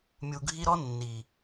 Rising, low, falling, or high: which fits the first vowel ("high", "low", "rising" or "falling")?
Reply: high